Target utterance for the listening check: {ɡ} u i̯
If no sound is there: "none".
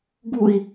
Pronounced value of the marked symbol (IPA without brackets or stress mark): ɡ